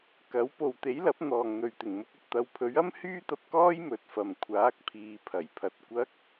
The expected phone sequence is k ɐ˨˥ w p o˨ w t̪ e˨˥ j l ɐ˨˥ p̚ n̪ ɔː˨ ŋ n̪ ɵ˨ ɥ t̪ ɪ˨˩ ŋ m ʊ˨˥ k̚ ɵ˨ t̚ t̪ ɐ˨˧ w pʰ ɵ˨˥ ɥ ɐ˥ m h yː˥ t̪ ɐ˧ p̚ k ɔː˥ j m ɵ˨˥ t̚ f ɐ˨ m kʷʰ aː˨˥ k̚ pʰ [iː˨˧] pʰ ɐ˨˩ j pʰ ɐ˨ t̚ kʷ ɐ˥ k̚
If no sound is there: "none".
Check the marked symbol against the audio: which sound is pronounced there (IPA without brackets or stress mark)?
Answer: iː˨˧